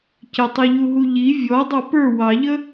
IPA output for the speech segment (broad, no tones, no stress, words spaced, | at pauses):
cətˤiʎuɦu ʎi vʲɔ dˤɑpə˞ wɑʎə